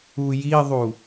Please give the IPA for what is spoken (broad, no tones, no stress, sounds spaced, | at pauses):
u j i ðˤ u